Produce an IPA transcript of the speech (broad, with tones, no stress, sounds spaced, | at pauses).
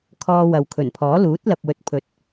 kʰ ɔː˧ w ɐ˨ w kʰ ɵ˨˩ n pʰ ɔː˨˥ l uː˨˥ t̚ l ɐ˨ p̚ w ɵ˨ t̚ pʰ ɵ˨ t̚